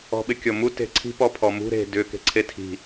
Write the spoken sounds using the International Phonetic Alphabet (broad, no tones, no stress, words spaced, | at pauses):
ɔ̤ɓɪkʲɔmu te̤ǀʰi̤ pɔpʰɔmṳ ɾe̤ dʏ ke̤ǀʰetʰi̤